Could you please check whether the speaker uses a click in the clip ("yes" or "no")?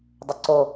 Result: yes